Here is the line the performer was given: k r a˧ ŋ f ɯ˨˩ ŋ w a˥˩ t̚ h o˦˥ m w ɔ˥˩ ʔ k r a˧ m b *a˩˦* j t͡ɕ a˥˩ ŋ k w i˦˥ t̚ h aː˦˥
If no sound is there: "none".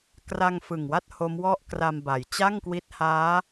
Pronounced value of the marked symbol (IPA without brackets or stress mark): a˩˦